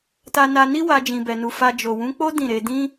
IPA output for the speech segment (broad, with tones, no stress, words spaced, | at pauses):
ta˧na˧ni˦wa˧ d͡ʒĩ˧bɛ˧nu˧ fa˧ d͡ʒo˨wũ˨˦k͡po˦ dĩ˦˨ɾe˧ dĩ˦